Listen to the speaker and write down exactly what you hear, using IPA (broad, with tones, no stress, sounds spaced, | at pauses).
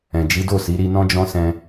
ɛ̃˨ d͡ʒ i˨˦ d o˦˨ s i˨˦ ɾ i˧ n ɔ̃˦ d͡ʒ ɔ̃˦ s ɛ̃˧